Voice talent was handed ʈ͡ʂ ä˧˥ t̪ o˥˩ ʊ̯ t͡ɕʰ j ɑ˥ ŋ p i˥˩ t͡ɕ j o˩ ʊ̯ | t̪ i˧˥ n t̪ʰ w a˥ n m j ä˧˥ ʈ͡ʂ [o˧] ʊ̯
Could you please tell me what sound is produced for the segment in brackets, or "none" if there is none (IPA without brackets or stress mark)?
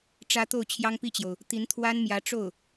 o˥˩